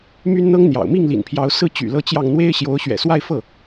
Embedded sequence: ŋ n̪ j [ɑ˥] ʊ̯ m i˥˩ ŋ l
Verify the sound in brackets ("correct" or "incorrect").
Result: incorrect